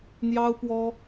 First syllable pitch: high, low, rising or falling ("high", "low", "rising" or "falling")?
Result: high